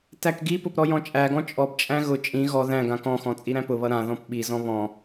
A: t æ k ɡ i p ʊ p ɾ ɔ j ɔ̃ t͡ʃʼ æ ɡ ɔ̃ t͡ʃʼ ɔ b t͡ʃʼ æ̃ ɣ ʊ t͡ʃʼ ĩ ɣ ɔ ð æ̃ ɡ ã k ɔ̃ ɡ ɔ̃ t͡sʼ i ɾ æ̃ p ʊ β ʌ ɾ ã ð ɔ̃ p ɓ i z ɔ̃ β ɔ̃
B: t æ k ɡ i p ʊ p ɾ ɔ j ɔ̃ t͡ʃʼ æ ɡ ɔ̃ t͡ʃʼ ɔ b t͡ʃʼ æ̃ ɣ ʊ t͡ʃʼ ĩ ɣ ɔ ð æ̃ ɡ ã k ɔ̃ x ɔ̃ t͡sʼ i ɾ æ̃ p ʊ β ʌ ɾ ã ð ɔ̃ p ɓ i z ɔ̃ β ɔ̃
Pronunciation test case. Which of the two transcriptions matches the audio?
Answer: B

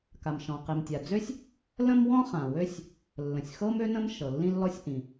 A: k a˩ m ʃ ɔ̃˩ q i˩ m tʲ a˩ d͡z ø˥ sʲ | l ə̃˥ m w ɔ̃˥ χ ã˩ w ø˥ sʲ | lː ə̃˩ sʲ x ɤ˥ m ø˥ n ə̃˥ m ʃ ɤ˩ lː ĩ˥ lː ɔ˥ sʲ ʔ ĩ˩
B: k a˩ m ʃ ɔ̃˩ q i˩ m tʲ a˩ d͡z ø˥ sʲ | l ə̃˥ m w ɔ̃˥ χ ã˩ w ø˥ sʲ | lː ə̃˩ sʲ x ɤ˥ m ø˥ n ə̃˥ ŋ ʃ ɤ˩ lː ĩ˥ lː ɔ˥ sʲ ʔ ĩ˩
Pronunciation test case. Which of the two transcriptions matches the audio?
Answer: A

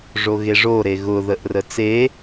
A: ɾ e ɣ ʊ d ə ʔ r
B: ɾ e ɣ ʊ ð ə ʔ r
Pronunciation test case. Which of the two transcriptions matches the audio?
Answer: B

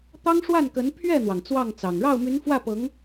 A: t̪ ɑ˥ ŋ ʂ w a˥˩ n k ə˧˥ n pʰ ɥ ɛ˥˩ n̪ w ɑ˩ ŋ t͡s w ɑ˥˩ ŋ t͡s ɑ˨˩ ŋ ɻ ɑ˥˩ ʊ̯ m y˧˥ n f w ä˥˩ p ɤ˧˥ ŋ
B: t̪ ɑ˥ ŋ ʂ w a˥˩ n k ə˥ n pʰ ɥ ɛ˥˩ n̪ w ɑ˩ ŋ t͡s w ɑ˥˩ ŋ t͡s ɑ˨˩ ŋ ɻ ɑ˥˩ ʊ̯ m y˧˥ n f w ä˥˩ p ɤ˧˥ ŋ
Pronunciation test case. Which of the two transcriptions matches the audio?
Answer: A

